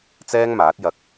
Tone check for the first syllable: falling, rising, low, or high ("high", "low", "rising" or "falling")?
high